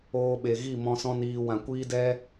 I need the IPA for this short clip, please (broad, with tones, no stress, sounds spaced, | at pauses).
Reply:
oː˧ ɓ e˨ ɣ i˦˨ m ɔ̃˧ s ɔ̃˦ n iː˧ w ã˨ kʷ iː˦ d ɛ˦